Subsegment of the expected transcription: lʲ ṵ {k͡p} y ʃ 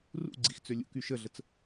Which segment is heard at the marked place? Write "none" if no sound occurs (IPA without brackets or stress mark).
k